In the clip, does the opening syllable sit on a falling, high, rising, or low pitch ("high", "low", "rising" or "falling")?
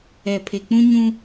low